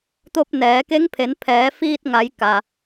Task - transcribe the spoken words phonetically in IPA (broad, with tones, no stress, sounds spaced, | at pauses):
t̪ o˧ p̚ n ɛː˩˧ k e˧˥ ŋ pʰ e˩˧ n pʰ ɛː˩˧ f iː˧ t̚ ŋ a˩˧ j k a˩